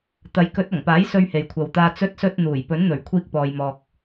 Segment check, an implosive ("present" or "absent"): absent